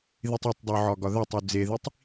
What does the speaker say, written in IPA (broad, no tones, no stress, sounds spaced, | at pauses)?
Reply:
ð i tˤ ɒ tˤ dˤ o ʕ ɒ ɡ ɒ ð æ tˤ u d͡z e ð i tˤ